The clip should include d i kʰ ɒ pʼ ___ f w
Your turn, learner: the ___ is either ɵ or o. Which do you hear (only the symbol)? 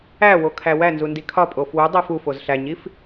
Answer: o